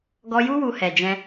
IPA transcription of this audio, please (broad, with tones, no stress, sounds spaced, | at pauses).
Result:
ɡ ɔ˦ j u˦ w u˧ h ɛ˨ d͡ʒ ɛ̃˧